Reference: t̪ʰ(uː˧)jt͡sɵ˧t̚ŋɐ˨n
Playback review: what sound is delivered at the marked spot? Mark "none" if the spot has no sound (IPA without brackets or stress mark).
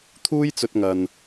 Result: uː˥